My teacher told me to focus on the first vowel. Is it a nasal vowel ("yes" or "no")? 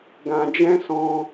yes